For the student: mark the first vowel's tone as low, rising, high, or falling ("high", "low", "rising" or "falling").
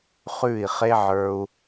falling